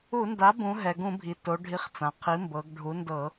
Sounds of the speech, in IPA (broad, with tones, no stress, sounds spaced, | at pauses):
u˧˩˧ n d a˩˥ b ũ˩˧ ɦ ɛ˩ ɡ ũ˧˩˧ bʱ i˩ t o˩˧ ɖʱ i˩˥ χ t͡s ã˩ qʰ i˩˥ m b ɤ˩˧ ɡ ɖʱ u˩˥ n d ɤ˧˩˧